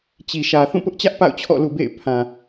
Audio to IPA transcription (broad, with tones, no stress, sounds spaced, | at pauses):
t͡ɕ i˨ ʃ ä˨ θ ũ˦˨ p ʊ˦ ʔ t͡ɕ ä˦ ʔ p a̰˦˨ ʊ̯ t͡ɕʰ ɔ̰˦˨ l ṵ˦˨ b ḛ˦˨ ɪ̯ pʰ ã˨